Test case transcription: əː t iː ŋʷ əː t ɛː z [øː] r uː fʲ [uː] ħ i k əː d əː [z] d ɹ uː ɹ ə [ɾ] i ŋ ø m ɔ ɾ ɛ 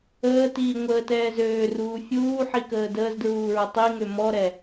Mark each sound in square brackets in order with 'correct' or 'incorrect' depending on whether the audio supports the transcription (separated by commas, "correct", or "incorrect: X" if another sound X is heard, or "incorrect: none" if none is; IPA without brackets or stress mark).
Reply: correct, correct, correct, incorrect: tˤ